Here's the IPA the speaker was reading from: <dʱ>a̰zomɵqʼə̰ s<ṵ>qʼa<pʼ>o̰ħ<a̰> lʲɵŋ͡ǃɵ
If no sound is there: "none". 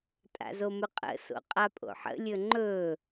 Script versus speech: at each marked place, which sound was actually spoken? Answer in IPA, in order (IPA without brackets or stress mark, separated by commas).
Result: tʼ, o̰, pʼ, ə̰